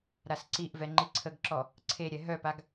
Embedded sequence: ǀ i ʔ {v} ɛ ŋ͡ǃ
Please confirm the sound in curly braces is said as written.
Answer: yes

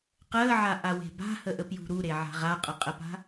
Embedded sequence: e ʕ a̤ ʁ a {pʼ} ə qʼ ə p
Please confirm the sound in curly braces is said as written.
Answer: no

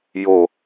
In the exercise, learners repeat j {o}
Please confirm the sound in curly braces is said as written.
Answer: yes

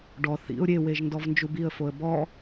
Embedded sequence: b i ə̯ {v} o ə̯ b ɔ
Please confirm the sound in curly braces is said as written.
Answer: no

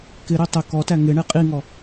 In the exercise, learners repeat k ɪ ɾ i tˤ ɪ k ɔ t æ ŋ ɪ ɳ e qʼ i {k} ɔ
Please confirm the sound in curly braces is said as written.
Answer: no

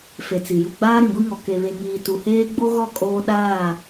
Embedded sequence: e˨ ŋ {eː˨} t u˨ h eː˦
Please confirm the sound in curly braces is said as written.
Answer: no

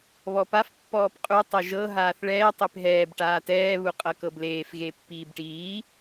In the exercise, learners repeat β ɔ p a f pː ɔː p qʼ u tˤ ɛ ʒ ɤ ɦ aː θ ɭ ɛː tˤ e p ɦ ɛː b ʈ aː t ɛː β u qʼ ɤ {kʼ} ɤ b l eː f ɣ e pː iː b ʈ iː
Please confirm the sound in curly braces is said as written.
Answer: no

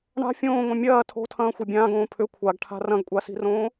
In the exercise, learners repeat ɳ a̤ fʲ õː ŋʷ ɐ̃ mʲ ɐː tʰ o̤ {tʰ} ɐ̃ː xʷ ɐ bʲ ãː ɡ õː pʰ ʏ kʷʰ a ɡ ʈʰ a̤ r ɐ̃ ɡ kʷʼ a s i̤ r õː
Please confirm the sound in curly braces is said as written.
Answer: yes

